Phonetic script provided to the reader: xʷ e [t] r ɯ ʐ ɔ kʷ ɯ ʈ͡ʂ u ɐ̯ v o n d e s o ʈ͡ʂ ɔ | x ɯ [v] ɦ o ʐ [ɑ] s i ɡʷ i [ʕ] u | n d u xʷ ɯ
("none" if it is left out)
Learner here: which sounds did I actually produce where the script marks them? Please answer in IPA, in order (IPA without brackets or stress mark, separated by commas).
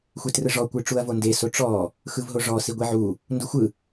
t, v, ɔ, ʕ